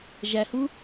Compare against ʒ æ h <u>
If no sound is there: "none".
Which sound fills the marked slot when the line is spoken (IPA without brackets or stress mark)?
u